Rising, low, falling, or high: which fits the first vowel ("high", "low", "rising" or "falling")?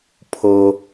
high